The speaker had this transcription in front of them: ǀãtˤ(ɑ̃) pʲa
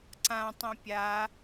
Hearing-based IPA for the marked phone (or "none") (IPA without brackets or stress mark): ɐ̃